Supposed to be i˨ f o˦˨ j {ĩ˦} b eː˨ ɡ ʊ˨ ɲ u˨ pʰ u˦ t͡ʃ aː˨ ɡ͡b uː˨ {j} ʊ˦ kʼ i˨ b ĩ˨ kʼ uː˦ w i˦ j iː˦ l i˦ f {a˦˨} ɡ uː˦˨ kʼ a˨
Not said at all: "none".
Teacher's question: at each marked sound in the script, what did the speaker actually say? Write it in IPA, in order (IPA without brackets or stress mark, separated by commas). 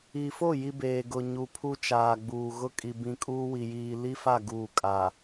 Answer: i˦, ɣ, a˦˨